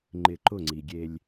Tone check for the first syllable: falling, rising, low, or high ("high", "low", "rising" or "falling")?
falling